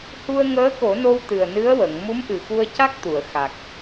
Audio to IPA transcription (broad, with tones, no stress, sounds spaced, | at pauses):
h u˧ ə̯ ŋ əː˧˥ k o˨˩˦ n o˧ w t̪ ɨ˨˩ ə̯ n ɨ˧˥ ə̯ w ə˨˩˨ ŋ m u˧˥ m ʔ ɨ˨˩ x u˧ ə̯ c a˦˥ k̚ t̪ u˨˩˨ ə̯ x a˨˩ k̚